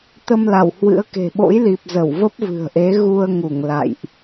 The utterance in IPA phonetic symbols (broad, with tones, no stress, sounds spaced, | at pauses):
t̪ ə˧ m l a˧˩ w h w ɨ̰˧˥ ə̯ k e̤˨˩ ɓ o̰˧˥ j l i˨˩ p̚ z ə˧˩ w v ə˦˥ p̚ v ɨ̤˨˩ ə̯ ʔ e˨˦ ɣ u˧ ə̯ ŋ u˧˩ ŋ l a̰˧˨ j ʔ